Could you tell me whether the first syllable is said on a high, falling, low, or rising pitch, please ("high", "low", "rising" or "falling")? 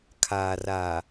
low